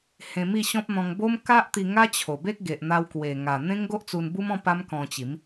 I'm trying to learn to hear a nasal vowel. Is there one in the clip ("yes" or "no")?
yes